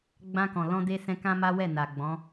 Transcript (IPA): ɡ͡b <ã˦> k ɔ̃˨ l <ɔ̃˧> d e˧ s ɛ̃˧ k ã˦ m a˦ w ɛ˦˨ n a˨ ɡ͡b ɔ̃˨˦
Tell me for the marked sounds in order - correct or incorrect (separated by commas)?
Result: incorrect, correct